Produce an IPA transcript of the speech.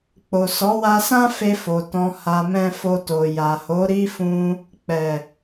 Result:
k͡p o˨ s ɔ˨˦ w a˧ s ã˦ f e˧ f o˨ t ɔ̃˧ h a˧ m ɛ̃˧ f o˧ t o˨ j a˨ h o˨˦ ɾ i˦ f ũ˧ | k͡p ɛ˨

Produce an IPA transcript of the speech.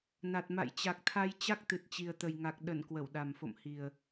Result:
n a˨˩ t̚ m a̰˧˨ j t͡ɕ a˨˩ k̚ t̪ʰ a˧ j t͡ɕ a˦˥ k̚ t̪ ɨ˨˩ t̚ t͡ɕ i˨˩ ə̯ t̪ ə˨˩ j ŋ a˨˩ k̚ ɗ ə˧˩ n k w ə˧˩ w ɗ a˨˩ m f o̰˧˨ m h i˨˩ ə̯

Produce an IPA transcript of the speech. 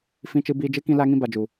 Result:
f ĩ˧ t͡ʃ ɨ˧ b iː˧ d͡ʒ ɨ˦ k ĩ˦ l a˦ ŋ ĩ˦ b a˨ d͡ʒ u˨

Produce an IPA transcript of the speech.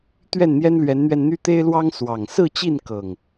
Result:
t̪ ɥ ɛ˥˨ n n̪ j ɛ˦ n l ɥ ɛ˨˦ n n̪ ɥ ɛ˧ n n̪ y˦ t̪ e˦ ɪ̯ l w ɑ˦ ŋ s w ɑ˨˩ ŋ s ɹ̩˥˨ t͡ɕ i˥˨ n k ɤ˨˩ ŋ

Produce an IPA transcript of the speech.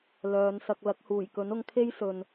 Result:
l œː˨˧ n s ɐ˧ k̚ l ɐ˨˥ k̚ h uː˨˩ j k ɵ˨˥ n ʊ˧ ŋ kʰ e˥ j s ɵ˨ n

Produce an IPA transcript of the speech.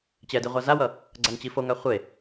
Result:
t͡ɕ ɛ d i ʁʷ a z a w ʌ | ɡ͡ǀ a ŋ t͡ɕ i f o ŋ a χʷ e

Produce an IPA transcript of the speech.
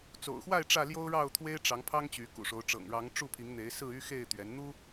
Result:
t͡s o̰˨˩ ʊ̯ x w a˥˨ ɪ̯ ʈ͡ʂ ä˥˨ l j o˦ ʊ̯ ɻ ɑ˥˨ ʊ̯ t̪ʰ w e˦ ɪ̯ ʈ͡ʂ ɑ˨˦ ŋ pʰ ɑ˦ ŋ t͡ɕ y˨˦ k ṵ˨˩ ʂ o˨˦ ʊ̯ ʈ͡ʂ ɤ̰˨˩ ŋ ɻ ɑ˨˦ ŋ ʈ͡ʂ u˥˨ pʰ i˨˦ ŋ n̪ e˨˦ ɪ̯ s ɹ̩˥˨ y˦ x e˥˨ ɪ̯ t̪ ɥ ɛ˨˦ n n̪ u˦

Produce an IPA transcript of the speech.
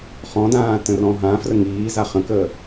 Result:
χ ɔ̃ d ãː t ə̃ r ɔ̃ ɦ ã f r ə ŋ iː z a χ ə̃ k əː

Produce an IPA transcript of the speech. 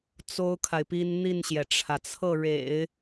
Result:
t͡s o˥ ʊ̯ kʰ a˨ ɪ̯ p i˥ n n̪ i˥˩ n ɕ j ɛ˩ ʈ͡ʂʰ ä˩ t͡sʰ ɤ˥˩ ɻ ḛ˨˩˦ ɪ̯

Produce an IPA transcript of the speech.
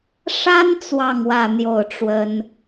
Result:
ʂ a˥ n t͡s w ɑ˥˧ ŋ w ä˥˧ n̪ j o˥˩ ʊ̯ ʈ͡ʂ w ə˥ n

